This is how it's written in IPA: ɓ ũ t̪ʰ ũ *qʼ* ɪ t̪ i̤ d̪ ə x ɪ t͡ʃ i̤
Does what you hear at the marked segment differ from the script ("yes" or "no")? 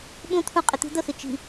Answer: no